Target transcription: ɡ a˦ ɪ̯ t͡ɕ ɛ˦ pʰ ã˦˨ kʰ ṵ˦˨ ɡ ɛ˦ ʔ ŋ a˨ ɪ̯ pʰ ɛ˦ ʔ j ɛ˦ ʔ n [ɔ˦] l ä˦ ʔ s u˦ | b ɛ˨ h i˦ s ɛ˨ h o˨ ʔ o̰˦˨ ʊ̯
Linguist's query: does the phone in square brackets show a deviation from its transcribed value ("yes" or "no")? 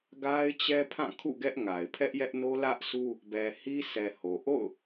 yes